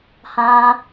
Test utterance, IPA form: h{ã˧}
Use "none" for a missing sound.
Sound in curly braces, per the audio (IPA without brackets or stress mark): ã˧